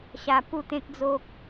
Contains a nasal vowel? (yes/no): yes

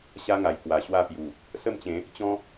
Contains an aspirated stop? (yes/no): no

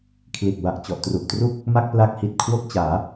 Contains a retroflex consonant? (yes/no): no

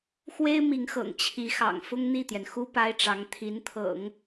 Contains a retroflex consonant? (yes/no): yes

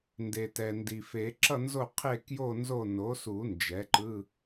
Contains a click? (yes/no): yes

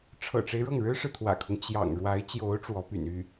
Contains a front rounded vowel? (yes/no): yes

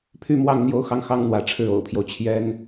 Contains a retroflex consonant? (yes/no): yes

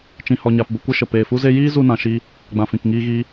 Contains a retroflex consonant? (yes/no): no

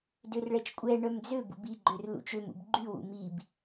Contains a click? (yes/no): yes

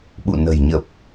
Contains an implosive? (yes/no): yes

